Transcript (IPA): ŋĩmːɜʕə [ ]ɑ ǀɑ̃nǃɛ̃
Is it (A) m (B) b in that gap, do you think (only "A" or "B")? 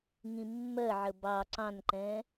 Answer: B